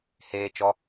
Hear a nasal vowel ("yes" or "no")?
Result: no